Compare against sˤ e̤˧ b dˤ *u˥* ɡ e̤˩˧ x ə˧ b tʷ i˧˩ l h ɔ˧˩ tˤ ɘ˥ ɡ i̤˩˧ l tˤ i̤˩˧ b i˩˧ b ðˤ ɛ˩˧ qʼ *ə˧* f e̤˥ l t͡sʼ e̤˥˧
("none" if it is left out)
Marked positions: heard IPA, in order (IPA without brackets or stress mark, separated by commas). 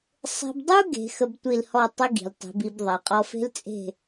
u˥, ɔ˧